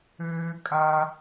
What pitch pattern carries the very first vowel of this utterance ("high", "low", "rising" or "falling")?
low